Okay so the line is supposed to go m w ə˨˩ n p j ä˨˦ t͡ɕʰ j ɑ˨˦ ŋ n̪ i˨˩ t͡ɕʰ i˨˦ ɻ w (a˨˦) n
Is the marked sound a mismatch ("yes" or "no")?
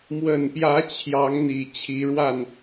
yes